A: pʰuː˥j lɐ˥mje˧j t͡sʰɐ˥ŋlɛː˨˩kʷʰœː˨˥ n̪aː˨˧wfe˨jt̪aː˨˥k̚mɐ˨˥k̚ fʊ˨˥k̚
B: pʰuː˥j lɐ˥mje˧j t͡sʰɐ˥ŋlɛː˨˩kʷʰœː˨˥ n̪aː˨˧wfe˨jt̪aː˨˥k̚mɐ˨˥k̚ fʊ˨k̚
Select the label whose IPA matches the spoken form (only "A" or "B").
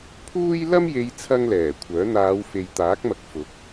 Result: A